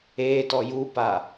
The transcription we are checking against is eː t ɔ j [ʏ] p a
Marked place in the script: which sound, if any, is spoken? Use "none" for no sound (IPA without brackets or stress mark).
u